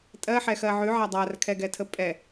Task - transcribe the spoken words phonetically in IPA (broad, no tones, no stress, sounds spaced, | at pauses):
tʼ ɜ ħ ɛ x ɜ ʕ ʉ ʕ a dˤ a r kʰ ɛ ɡ ɛ tʰ ə pʼ ɛ